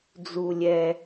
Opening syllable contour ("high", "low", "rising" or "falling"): high